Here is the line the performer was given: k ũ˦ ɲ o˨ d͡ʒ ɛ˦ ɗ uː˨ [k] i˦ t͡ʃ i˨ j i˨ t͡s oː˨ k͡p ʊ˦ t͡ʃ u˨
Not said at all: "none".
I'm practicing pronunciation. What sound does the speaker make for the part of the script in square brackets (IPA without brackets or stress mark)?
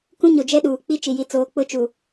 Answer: k͡p